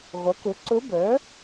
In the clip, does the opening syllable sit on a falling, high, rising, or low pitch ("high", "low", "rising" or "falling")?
rising